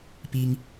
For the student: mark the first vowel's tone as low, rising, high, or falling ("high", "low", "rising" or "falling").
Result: high